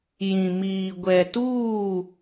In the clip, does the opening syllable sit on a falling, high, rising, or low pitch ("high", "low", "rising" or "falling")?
low